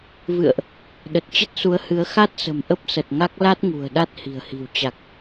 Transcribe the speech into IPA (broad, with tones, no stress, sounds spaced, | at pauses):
v ɨ̰˧˨ ə̯ ʔ | ɗ ə˨˩ t̚ t͡ɕ ə˦˥ t̚ s u˨˦ ə̯ h ɨ˨˦ ə̯ x a˦˥ t̚ s ə̤˨˩ m ʔ ə˦˥ p̚ s ə˨˩ t̚ ŋ a˦˥ k̚ l a˦˥ t̚ ŋ ṳ˨˩ ə̯ ɗ a˦˥ t̚ h i̤˨˩ ə̯ h i̤˨˩ w t͡ɕ a˨˩ k̚